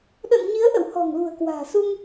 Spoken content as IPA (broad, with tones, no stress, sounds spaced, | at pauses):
ɗ ə̰˧˨ n ɲ i˨˦ ə̯ ʔ ə̰˧˨ w h ɔ̤˨˩ ŋ l ṳ˨˩ ə̯ k w a̤ː˨˩ s u˧ ŋ